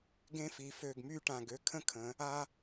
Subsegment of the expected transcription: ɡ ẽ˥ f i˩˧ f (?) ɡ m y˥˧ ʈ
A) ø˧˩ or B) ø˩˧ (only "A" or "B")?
A